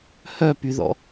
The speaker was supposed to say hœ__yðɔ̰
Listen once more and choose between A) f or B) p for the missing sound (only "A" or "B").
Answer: B